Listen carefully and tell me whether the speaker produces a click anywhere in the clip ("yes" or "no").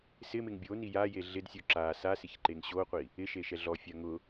yes